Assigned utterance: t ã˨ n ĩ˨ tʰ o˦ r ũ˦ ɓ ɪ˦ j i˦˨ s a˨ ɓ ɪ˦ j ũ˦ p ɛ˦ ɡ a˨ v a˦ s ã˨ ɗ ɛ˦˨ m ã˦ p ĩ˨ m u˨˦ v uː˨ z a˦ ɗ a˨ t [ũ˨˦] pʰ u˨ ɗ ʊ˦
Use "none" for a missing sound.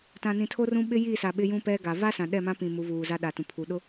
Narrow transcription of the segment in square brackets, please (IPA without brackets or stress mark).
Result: ũ˨